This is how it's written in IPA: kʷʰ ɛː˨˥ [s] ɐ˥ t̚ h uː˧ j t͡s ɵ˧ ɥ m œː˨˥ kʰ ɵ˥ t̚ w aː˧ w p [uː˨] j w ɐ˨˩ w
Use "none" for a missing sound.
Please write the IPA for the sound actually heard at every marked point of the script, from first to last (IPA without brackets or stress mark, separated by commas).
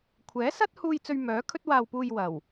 s, uː˧